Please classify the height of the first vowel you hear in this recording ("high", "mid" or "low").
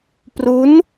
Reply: high